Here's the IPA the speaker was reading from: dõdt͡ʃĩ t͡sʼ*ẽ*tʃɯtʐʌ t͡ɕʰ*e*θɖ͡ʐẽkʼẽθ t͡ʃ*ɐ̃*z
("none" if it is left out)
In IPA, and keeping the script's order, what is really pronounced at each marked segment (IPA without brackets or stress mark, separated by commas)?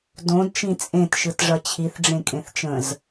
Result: ẽ, i, ə̃